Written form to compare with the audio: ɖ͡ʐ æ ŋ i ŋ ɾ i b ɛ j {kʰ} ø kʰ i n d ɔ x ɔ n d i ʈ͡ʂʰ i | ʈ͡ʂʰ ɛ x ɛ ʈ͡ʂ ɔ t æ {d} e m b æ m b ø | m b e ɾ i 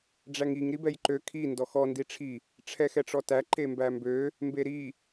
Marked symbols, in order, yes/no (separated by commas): no, no